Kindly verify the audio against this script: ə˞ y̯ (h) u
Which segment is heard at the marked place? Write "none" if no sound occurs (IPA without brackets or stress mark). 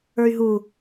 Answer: ɦ